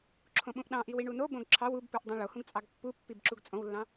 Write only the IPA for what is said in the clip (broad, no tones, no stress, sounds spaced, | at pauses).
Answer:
ǁʰ õ ɓ ũ ʔ ɗ ɑ̃ ʔ i w i ɳ u n o b õ ɡ ǁʰ ɑ w u b p u ʔ dˤ ũ ɭ o h ũ ɡ t͡sʼ ɑ ɡ pː u pː i b ǁ u ɡ t͡sʼ õ w lː ɑ̃